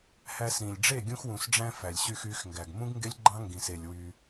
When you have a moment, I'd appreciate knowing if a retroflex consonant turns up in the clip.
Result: yes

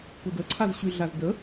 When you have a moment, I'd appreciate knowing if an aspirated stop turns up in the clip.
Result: yes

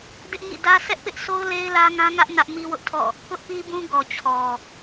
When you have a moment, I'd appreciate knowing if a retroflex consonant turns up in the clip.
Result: no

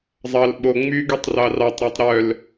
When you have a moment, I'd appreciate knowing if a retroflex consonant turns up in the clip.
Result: no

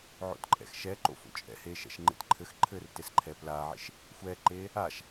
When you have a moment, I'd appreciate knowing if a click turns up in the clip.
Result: yes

